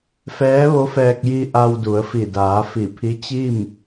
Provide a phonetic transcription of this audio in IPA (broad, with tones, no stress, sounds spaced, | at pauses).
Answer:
f ɛː˧˥ ʋ o˧˥ f ɛː˧ k̚ j i˧ ʔ a˧ w d u˩˧ ə̯ f i˧˩ d aː˩˧ f i˧˩ pʰ i˧˥ t͡ɕ i˥˨ m